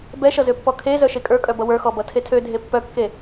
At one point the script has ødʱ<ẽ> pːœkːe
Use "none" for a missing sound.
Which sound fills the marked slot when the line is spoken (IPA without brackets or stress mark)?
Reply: e